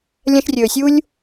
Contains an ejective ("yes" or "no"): no